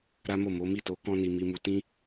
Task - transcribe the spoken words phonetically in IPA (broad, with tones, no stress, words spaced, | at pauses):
ɾa˦mo˦˨ mo˨˦mi˦˨to˨˦ kɔ̃˦ ni˧mi˧mu˧ tĩ˦